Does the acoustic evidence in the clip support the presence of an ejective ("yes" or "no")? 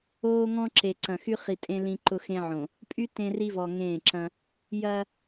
yes